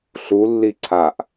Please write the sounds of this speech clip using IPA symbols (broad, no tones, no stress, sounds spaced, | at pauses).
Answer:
ɬ u lː i ǀʰ a ʔ